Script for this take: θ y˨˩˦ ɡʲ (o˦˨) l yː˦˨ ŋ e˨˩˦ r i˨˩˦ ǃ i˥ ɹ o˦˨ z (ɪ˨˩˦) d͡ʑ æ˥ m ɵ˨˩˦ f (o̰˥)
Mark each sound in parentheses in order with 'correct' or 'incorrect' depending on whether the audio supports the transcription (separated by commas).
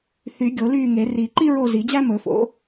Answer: incorrect, incorrect, incorrect